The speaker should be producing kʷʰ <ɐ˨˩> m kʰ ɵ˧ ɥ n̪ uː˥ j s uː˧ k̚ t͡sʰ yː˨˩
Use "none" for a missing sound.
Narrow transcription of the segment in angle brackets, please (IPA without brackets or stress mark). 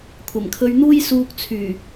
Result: ɐ˨˩